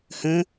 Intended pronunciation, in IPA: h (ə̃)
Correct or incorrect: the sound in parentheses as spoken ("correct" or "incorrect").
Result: correct